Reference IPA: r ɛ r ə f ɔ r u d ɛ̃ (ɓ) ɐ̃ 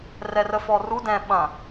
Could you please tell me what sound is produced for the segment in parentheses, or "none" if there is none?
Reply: ɓ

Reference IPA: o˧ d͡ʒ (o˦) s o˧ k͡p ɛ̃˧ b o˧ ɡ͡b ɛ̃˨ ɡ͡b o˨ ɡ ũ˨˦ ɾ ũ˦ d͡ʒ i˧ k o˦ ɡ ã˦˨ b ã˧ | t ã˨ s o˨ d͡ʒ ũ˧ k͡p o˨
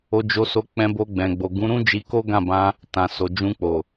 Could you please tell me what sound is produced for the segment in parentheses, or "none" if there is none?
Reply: o˧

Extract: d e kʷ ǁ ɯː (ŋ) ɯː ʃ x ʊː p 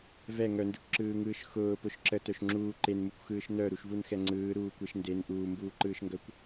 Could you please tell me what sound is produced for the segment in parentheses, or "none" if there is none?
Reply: ŋ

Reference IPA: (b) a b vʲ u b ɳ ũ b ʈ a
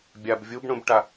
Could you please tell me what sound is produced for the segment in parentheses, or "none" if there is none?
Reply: bʲ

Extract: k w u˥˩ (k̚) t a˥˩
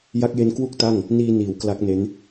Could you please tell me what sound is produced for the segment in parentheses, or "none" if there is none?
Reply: k̚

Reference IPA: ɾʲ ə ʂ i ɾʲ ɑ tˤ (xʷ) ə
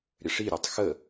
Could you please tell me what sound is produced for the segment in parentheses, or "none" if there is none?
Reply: x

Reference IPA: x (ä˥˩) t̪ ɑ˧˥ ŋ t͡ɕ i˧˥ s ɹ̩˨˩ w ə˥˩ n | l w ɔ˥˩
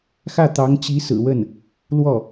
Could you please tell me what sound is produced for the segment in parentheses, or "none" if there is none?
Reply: ä˥˩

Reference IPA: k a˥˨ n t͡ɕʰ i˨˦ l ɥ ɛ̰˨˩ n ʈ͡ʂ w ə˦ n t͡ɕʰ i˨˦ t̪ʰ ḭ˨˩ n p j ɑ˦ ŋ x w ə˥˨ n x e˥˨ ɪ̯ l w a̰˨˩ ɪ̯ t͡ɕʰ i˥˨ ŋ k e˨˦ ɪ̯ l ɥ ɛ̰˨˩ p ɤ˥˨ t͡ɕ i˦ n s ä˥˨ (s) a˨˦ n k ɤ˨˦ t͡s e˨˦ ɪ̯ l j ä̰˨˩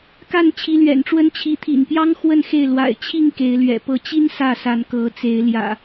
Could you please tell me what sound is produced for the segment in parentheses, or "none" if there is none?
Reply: s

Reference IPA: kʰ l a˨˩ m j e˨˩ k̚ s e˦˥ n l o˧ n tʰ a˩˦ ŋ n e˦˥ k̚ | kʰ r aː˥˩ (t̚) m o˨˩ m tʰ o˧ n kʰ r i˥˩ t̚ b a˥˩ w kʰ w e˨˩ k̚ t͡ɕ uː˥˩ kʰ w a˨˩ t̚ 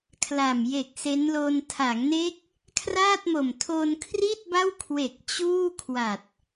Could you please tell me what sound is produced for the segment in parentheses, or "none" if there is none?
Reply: t̚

